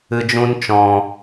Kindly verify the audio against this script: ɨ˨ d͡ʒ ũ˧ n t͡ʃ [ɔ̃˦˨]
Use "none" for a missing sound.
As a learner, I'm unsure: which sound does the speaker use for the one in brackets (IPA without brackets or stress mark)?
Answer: ɔ̃˨